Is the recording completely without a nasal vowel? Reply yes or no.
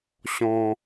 no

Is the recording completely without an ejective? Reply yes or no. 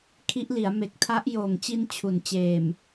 yes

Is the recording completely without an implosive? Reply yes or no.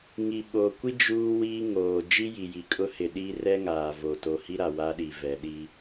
no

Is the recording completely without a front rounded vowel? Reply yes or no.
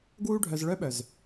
no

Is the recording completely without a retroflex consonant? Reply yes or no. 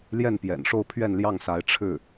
no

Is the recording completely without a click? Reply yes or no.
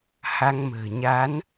yes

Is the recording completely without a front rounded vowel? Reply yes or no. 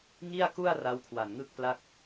yes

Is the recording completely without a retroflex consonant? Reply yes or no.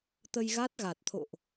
yes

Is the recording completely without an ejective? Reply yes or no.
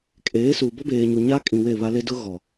no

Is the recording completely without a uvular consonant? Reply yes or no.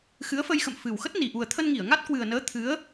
yes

